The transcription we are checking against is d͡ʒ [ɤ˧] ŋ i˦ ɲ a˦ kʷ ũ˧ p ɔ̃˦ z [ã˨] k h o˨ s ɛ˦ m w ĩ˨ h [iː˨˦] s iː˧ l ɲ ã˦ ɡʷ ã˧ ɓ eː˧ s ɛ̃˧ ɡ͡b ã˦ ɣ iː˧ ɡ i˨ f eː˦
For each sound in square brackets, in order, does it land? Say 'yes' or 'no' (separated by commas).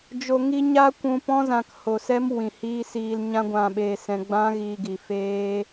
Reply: no, yes, no